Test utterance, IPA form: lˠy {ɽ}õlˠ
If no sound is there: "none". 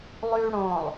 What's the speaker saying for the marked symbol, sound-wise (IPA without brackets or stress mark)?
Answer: ɽ